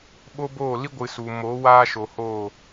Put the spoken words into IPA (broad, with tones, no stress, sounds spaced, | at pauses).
ɓ o˦ b oː˦˨ l i˦ ɡʷ ɨ˨ s u˨ m o˨˦ w aː˦ ʃ o˨ h oː˦˨